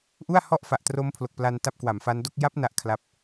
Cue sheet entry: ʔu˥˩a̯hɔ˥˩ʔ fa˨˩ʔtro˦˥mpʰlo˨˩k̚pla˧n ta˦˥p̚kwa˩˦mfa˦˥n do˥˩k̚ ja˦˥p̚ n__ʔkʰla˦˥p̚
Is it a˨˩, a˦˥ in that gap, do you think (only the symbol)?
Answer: a˦˥